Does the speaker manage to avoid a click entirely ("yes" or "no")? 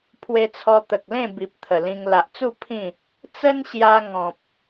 yes